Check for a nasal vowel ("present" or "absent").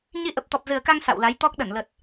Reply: absent